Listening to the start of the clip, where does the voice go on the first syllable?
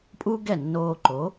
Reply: high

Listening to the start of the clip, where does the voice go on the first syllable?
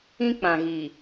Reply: high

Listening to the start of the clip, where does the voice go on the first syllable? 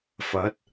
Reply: rising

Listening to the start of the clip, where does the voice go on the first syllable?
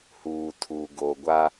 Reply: low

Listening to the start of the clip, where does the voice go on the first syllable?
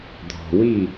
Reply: low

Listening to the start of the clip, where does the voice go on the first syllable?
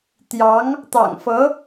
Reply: rising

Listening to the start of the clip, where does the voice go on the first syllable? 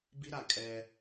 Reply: high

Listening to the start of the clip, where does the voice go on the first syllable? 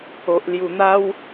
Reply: low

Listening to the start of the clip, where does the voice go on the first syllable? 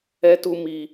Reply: high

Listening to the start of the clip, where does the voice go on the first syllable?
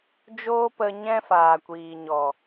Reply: high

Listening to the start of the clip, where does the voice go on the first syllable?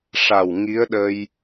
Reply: low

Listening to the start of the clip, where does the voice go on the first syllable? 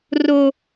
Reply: low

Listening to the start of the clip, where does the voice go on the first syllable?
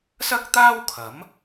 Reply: high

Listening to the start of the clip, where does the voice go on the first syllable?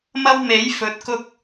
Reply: high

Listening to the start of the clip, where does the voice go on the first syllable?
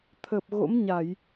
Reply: low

